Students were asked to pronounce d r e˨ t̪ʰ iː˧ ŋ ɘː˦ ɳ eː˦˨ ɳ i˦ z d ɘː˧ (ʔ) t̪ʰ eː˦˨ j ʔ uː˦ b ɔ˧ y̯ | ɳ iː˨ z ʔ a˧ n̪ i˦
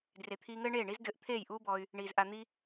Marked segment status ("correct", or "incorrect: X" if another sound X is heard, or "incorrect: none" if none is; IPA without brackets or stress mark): correct